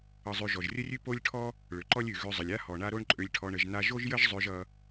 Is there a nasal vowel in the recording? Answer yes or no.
no